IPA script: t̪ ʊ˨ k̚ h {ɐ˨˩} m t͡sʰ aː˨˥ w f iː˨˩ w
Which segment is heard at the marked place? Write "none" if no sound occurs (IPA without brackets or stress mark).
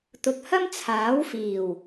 ɐ˥